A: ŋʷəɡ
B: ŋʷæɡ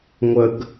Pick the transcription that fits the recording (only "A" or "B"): A